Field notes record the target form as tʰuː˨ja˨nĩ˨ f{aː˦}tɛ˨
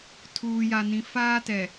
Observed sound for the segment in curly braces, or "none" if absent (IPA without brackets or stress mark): aː˦